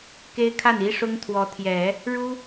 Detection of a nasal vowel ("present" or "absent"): absent